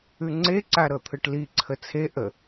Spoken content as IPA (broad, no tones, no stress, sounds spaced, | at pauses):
ʉ ŋ͡ǀ e ǀ a ɾ ɤ t̪ʰ ɯ ʈ l i ǀʰ ə t͡sʰ e ʔ ə